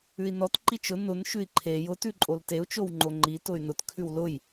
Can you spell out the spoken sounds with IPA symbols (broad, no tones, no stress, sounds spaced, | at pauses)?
ʉ i̯ n ɔ t ǃ i t͡ʃ ʊ n ʊ n ʃ ʉ i̯ ǃʰ e j ʊ t ʉ ǃʼ o l t e u̯ t͡ʃ o w ŋ͡ǃ o ŋ͡ǃ i t ʊ y̯ n ʊ t kʰ ʉ w l ʊ j